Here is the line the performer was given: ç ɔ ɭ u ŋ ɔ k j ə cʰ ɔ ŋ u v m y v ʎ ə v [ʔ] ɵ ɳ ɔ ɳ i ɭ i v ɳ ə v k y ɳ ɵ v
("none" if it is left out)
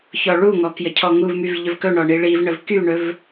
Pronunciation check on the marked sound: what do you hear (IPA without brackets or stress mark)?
k